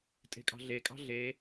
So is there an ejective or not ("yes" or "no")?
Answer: yes